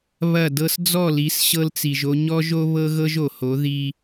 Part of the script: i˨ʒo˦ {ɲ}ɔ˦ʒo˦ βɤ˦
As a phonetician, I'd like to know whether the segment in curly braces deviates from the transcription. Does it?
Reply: no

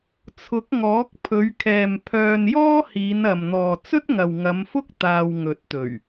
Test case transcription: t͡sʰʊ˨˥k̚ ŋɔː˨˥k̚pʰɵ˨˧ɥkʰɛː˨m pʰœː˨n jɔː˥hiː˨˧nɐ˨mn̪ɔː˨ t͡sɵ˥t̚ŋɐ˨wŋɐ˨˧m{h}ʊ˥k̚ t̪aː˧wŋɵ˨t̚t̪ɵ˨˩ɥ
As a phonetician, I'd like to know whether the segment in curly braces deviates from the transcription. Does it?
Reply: yes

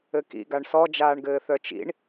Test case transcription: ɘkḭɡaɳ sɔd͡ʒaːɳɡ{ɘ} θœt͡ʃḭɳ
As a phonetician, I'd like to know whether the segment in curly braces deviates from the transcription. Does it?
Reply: yes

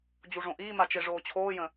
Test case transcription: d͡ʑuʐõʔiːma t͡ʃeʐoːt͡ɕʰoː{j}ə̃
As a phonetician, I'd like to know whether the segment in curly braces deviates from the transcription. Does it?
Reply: no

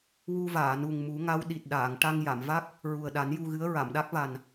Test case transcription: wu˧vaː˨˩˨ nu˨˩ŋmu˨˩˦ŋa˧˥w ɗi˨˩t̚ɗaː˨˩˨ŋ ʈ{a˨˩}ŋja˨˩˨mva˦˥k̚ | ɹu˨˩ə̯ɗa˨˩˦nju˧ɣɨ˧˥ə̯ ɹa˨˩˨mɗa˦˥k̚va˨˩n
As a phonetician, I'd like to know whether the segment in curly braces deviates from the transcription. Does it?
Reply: yes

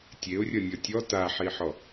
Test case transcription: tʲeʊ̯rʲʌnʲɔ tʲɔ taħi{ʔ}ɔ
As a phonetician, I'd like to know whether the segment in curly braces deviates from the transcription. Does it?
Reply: yes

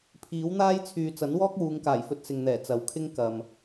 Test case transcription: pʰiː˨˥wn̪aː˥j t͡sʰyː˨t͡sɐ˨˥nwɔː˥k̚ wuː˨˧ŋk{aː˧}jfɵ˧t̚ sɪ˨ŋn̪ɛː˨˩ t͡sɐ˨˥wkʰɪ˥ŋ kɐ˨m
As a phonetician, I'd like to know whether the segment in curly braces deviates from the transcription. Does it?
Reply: yes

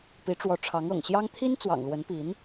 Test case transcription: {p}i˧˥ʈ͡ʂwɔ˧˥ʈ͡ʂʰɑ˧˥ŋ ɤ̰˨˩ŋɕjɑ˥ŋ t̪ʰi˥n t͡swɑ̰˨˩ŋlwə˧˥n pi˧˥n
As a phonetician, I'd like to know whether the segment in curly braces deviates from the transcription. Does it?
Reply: no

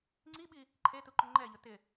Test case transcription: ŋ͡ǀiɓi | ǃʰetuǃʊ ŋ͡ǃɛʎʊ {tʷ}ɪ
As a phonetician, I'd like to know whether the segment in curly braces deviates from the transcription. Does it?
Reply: yes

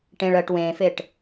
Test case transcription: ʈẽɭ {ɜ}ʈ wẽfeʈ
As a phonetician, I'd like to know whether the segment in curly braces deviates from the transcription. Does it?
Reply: no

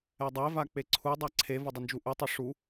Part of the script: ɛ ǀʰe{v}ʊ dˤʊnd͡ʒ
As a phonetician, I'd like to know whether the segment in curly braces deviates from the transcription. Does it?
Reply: no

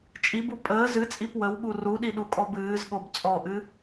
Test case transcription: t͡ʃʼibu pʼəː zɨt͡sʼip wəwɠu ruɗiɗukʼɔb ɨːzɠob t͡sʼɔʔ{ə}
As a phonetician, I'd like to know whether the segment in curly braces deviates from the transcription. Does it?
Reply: yes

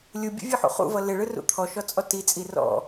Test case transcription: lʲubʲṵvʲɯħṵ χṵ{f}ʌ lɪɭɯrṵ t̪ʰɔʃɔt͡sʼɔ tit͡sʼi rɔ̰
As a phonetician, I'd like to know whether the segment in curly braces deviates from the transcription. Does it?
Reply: yes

